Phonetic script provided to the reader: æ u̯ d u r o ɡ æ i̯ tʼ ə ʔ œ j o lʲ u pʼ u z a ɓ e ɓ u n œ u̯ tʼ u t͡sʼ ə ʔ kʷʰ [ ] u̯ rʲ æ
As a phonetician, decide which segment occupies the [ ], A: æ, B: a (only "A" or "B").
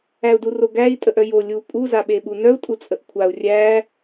B